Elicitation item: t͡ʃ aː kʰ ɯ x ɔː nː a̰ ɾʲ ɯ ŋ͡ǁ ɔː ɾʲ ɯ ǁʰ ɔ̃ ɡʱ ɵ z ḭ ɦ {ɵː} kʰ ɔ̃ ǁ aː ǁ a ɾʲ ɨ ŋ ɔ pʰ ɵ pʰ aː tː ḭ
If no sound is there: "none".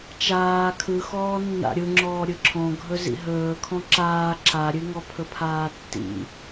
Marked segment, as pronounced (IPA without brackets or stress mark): ɵː